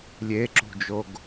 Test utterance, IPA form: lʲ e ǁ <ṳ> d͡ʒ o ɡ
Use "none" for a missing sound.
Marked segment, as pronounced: ṳ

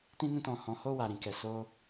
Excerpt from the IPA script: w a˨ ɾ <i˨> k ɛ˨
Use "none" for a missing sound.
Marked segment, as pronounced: ĩ˨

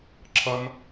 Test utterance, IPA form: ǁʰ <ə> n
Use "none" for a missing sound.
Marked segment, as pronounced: ʌ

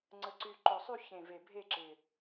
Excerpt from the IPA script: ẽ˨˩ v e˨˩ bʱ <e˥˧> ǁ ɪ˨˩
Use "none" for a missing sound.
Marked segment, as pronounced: e˥˧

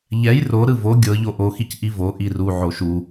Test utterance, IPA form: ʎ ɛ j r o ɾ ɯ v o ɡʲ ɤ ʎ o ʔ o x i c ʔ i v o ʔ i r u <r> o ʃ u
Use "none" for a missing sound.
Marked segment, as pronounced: ʕ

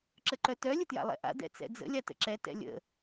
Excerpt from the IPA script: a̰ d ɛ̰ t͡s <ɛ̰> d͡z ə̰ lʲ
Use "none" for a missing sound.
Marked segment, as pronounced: ɛ̰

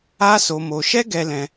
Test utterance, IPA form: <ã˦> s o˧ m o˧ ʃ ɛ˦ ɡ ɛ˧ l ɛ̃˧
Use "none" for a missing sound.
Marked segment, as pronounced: a˦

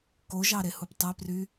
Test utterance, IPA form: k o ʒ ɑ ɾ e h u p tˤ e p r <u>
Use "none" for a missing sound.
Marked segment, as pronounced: y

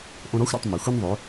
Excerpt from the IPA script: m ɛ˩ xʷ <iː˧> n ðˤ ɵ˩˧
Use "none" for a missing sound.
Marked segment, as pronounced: i˧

